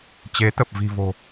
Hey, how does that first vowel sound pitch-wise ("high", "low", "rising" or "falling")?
rising